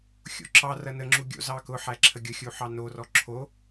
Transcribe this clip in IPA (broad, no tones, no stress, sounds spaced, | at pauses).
xʲ o̰ ǁ ɑ r ɐ n ə ŋ͡ǁ u ɡʲ o̰ z ɑ k ʊ ħ æ ǁʰ ə ɡʲ ʊ xʲ u ħ ɑ n o r ɔ ǁʰ o